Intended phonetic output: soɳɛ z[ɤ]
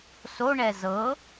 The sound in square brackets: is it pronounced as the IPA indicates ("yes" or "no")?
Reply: yes